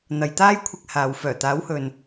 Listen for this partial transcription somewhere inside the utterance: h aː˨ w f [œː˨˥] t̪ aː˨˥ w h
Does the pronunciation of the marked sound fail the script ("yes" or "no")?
yes